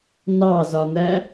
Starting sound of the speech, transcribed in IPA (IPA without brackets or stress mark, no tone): n